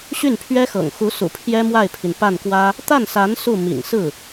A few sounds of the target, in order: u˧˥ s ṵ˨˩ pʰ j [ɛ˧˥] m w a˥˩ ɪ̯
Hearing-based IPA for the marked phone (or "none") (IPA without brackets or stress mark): ɛ˥